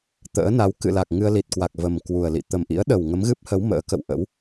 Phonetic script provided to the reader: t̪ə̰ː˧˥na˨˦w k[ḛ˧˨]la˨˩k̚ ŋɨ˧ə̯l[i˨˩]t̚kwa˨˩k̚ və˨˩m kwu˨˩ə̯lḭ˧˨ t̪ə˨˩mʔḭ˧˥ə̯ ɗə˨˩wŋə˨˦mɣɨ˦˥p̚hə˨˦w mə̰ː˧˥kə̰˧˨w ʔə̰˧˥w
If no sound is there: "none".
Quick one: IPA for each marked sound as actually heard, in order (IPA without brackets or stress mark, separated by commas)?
ɨ̰˧˨, i˨˩